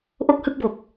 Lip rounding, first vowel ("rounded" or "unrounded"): rounded